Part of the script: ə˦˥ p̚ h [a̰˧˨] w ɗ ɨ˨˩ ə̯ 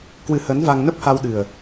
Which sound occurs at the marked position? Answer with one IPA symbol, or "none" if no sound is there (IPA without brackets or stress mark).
a˧